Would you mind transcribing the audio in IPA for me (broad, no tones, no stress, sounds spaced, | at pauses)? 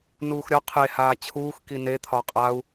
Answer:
n uː x ɾʲ ɒ qʰ e h aː t͡ɕʰ uː x k i n e t̪ʰ ɒ qʼ a u̯